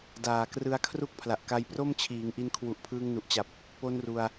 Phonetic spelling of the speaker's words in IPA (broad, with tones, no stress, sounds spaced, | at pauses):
d aː˨˩ k r ɯ˧ a̯ kʰ r u˦˥ k̚ pʰ l a˨˩ ʔ k a˧ j p r o˥˩ m t͡ɕʰ iː˩˦ ŋ ʔ i˧ n kʰ w u˨˩ ʔ pʰ ɯː˧ ŋ n u˨˩ ʔ t͡ɕ a˨˩ p̚ | p o˧ n r u˧ a̯